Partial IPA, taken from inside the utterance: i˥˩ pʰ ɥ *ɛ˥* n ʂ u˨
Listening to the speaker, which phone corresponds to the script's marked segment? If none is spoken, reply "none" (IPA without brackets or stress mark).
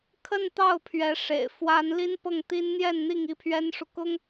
ɛ˥